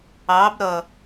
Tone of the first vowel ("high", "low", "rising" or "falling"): rising